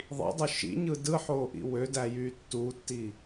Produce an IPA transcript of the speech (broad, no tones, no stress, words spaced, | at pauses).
ðˤḭdˤø ʃḭɲɯ dɯħoːʔḭ wødæjyː tːuːtːi